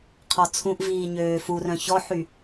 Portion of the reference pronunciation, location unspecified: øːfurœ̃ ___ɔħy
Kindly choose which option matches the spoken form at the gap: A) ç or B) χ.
A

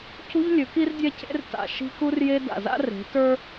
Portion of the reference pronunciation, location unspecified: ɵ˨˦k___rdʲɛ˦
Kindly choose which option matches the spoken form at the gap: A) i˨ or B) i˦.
B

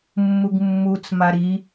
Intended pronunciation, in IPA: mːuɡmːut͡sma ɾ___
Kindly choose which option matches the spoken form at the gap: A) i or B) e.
A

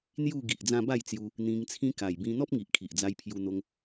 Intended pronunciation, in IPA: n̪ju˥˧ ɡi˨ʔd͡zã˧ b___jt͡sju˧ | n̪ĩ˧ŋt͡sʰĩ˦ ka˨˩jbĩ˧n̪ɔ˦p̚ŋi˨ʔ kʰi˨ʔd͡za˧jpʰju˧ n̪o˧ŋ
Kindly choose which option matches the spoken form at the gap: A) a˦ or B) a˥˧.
B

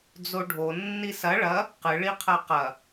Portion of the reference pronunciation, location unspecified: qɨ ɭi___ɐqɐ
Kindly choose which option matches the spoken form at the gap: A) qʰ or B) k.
A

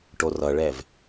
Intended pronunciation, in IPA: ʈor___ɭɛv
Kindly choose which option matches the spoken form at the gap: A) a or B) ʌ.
B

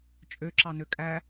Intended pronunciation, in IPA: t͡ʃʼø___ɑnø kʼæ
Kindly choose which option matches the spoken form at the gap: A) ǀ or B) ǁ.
B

